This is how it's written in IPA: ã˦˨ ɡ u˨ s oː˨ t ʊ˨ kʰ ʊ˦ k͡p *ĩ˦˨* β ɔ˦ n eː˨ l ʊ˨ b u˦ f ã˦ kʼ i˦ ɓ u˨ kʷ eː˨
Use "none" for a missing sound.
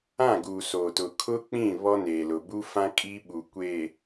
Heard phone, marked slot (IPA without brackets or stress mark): ĩ˦˨